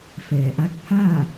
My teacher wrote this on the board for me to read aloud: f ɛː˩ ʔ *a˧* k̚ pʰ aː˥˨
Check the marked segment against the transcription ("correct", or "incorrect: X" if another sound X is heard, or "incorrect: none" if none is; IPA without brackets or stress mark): correct